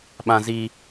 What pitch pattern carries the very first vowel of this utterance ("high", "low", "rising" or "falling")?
high